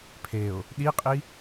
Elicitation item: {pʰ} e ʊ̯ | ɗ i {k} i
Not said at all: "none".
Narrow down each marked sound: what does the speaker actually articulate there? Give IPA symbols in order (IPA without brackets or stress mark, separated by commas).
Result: pʰ, qʼ